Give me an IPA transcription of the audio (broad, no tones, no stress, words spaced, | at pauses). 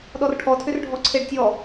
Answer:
ɗɔrʈʰɔtʰʏrɖʱɔ ǀʰeɖtʲɔ